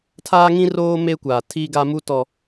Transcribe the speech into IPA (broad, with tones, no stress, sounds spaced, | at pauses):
tʰ aː˦ ŋ ĩ˦ r oː˦ m e˦ kʷ aː˨ tʰ iː˦ ɡ a˦ m u˦ t ɔ˨